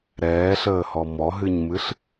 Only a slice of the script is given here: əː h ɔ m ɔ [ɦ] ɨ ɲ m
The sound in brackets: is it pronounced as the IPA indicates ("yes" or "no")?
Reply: yes